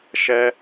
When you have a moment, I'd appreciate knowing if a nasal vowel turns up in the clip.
no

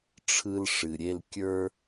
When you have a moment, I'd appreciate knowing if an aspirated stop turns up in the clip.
yes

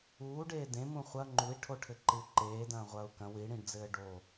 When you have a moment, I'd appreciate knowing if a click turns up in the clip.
yes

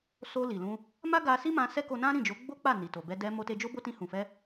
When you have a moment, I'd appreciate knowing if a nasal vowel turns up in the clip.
yes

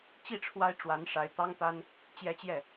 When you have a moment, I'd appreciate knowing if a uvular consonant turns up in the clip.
no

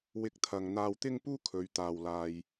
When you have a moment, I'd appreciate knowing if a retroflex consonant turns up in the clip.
no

